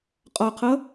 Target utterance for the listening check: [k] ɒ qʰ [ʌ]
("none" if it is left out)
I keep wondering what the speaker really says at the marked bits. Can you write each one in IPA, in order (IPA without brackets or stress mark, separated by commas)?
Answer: qʼ, ʌ